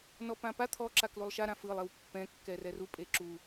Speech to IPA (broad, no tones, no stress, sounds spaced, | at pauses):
n ɔ p ã p a t̪ʰ ɔ ǁ a k l u lˠ ʃ a ɾ ã f ɯ lˠ i w pː ɛ̃ kː ɛ r ɛ r u pʼ e ǁ u